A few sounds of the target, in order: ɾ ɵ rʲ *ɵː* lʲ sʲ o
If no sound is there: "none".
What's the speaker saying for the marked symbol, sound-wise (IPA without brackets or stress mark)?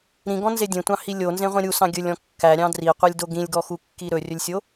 ɵ